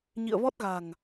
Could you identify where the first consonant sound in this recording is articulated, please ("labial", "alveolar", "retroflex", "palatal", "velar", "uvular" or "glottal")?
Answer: palatal